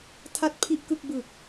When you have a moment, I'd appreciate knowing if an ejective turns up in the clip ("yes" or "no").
no